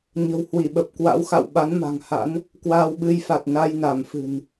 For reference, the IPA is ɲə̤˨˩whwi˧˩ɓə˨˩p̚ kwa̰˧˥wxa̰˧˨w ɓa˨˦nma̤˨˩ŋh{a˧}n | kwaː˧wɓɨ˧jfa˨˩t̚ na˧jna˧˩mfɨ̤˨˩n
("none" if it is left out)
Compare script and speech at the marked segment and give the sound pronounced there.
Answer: a̰˧˥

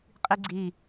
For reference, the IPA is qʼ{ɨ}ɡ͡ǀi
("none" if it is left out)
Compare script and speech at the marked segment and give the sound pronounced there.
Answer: i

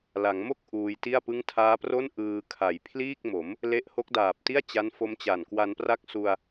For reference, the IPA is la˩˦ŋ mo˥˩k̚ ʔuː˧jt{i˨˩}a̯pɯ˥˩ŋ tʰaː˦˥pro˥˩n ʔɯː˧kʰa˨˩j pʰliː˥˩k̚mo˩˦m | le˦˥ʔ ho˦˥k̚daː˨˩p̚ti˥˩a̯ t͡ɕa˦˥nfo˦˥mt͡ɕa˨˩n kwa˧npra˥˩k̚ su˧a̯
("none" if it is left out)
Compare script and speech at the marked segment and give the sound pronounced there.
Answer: i˥˩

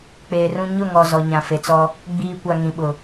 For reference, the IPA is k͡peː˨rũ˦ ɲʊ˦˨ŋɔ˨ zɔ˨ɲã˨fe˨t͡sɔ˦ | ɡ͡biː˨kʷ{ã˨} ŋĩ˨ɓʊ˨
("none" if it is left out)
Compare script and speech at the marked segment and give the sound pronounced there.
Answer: a˨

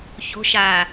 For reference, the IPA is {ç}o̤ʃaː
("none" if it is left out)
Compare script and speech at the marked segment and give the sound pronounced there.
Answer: ç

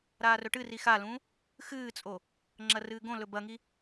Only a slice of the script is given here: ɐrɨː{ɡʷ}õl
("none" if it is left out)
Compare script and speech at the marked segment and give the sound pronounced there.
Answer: ɡ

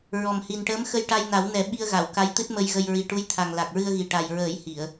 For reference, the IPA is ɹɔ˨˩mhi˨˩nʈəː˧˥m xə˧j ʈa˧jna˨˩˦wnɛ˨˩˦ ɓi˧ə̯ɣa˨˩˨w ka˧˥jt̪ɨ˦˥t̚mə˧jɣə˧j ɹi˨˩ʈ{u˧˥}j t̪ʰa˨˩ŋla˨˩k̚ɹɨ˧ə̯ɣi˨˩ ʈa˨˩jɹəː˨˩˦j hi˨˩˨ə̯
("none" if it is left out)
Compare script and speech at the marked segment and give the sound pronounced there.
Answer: u˧˥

